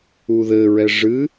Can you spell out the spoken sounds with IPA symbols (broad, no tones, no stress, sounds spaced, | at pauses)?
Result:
u ð ɘ ɹ ɛ ʐ ɨ